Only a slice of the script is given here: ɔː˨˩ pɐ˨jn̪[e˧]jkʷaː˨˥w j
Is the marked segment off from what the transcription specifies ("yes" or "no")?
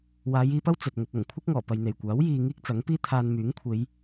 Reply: yes